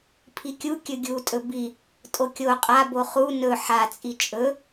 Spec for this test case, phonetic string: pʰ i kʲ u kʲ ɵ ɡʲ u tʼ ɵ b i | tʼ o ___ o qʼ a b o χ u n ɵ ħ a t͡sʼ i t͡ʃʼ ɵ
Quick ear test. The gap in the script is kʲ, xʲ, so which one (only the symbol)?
kʲ